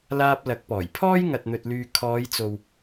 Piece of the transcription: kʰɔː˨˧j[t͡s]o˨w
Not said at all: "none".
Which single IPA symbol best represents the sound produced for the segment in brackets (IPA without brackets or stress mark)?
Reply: t͡s